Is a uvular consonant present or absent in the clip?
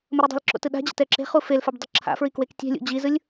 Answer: present